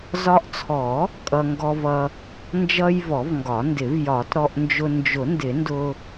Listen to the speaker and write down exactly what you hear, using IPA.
z ɒ˧ ʔ t͡sʰ ɔ˨˩˦ | kʼ ʌ˧ ŋ ɡ ɔ˧ v ʌ˧ | n d͡ʒ ʌ˧ j v ɔ˨˩˦ v ŋ ɡ ɒ˨˩˦ n d ɪ˨˩˦ v j ɒ˨˩˦ t ɾ ɔ˧ ʔ n d͡ʒ ʊ˧ n d͡ʒ ʊ˨˩˦ n d ɪ˨˩˦ n d ʊ˧

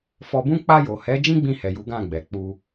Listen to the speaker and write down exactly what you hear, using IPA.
f ɔ˧ b ũ˦ k͡p a˧ j o˨ h ɛ˨˦ d͡ʒ ĩ˦ ɡ͡b ĩ˧ h ɛ˨ j u˨˦ ɡ ã˦˨ ɡ͡b ɛ˨ k͡p u˧

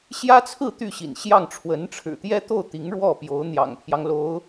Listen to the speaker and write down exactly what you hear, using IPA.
ɕ j ä˥ t͡sʰ ɹ̩˥˧ t̪ y˥˩ ɕ ḭ˨˩ n ɕ j ɑ˥˩ ŋ ʈ͡ʂʰ w ə˧˥ n ʈ͡ʂʰ ɻ̩˨˩ t̪ j ɛ˥ t̪ o˥˩ ʊ̯ t̪ i˧˥ ŋ ɻ w ɔ˥˩ p j o˧˥ ʊ̯ n̪ j ɑ̰˨˩ ŋ pʰ j ɑ˦ ŋ l o˧˥ ʊ̯

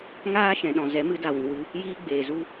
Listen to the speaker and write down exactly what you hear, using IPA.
ŋ aː˦ ʃ ɛ̃˧ ɗ ɔ̃˧ z ɛ˨˦ m ɨ˨˦ d a˨ w ĩ˨ w ɨ˧ | j iː˦ ɡ͡b eː˨ z u˦

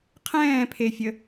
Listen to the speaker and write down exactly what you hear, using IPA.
qʰ ɛ̃ː pʰ e fʲ ə

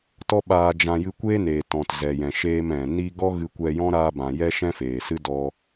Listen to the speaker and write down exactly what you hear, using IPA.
t ɔ˦ ɓ aː˧ d͡ʒ ã˧ j ɨ˧ kʷ eː˦ n eː˨ t ɔ̃˨ t z ɛ˨ j ɛ̃˨ ʃ eː˧ m ɛ̃˨ n i˧ ɡ ɔ˦ ɣ ɨ˧ kʷ ɛ˧ j ɔ̃˦ ɾ aː˧ b ã˨ j ɛ˦ ʃ ɛ̃˦ f eː˨ s ɨ˦ d ɔ˧

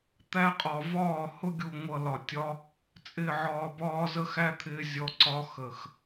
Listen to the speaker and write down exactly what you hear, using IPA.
t̪ æ˧ qʼ ɒ˨ v ɒː˦˨ h ʊ˦ ɡʲ u˨ ŋʷ ʌ˨ l ɒ˨ tʲ ɒ˦ | t͡sʼ ɪː˨ ʕ ɒː˨ b ɒː˧ z ə˦ x æ˦ t̪ʰ ɪː˧ zʲ ɔ˧ ǀ ɒ˦ x ə˨ x

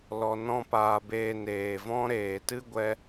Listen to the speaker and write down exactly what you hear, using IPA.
l ɔ˧ n ɔ̃˦ p aː˧ b eː˧ n eː˨ v ɔ̃˦ ɾ eː˨ t ɨ˦ ɡʷ ɛ˧

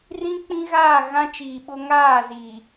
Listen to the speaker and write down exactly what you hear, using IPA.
r ĩ˦ k͡p ĩ˦ ɣ aː˦˨ ɣ ã˦ t͡ʃ iː˨ ɓ ʊ˦ ŋ aː˦˨ z iː˨

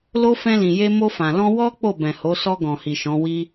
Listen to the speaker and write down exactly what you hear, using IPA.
l o˧ f ɛ̃˧ l ĩ˨ j e˧ m o˧ f ã˨ l ɔ̃˧ w ɔ˦ k͡p o˦˨ b ɛ̃˨ h o˨˦ s ɔ˧ ɡ ɔ̃˨ h i˨ ʃ ɔ̃˨˦ w i˦

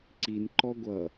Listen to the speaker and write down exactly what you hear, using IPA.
ǀ i n ǃ ɔ ɡʷ ʌ

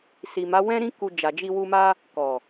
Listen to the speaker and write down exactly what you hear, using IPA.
s i˨ m a˨˦ w ɛ̃˦ ɾ ĩ˦ k u˧ d͡ʒ a˨ d͡ʒ i˧ w u˧ m a˦ | k ɔ˨

